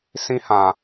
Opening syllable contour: high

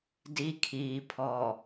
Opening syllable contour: high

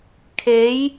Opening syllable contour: rising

